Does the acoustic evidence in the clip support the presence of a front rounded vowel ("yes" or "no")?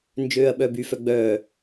yes